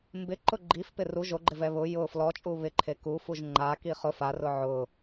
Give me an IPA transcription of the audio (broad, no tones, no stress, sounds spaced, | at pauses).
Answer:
m b ɪ ǃ ʊ ɡ͡ǃ i f p ɪ r u ʒ o ɡ͡ǃ ɪ v ɛ β ʊ j ʊ f l ɔ t͡ʃʼ u β ɪ ǃʰ e k u f u ʒ ŋ͡ǃ a k i χ ʊ f a r ʊ ʕ ʊ